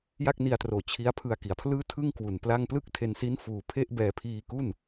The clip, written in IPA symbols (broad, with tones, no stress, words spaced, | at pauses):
ja˥˩k̚ni˧a̯troː˨˩ t͡ɕʰi˦˥a̯pʰɯ˧a̯ki˩˦a̯pʰlɯː˥˩ tʰɯ˥˩ŋkwu˨˩n pla˥˩ŋ plɯ˥˩k̚tʰe˧nsi˦˥n fuː˧ pʰe˥˩ʔbɛː˧pʰiː˧ ku˥˩n